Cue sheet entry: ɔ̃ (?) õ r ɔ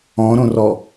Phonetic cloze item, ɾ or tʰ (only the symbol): ɾ